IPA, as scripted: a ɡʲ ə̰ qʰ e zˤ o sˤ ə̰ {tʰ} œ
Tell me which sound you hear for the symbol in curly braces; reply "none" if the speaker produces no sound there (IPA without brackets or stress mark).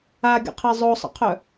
qʰ